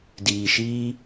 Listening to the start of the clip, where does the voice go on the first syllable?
low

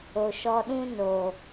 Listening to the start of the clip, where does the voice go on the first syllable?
low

